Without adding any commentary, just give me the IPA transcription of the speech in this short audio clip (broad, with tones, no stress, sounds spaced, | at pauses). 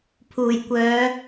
pʰ uː˨˩ j kʷ œː˨˧